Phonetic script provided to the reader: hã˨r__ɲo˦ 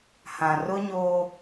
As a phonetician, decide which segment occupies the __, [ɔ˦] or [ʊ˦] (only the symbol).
ʊ˦